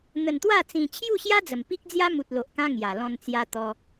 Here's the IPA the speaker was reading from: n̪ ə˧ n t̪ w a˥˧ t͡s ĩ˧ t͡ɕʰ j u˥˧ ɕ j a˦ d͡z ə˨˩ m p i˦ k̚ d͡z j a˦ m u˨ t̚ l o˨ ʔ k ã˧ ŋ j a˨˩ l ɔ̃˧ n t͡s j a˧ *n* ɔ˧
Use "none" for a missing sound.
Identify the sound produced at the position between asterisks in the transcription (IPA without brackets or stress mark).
t̪